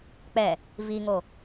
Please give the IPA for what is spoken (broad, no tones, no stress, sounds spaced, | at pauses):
k͡p ɛ | v i ŋ o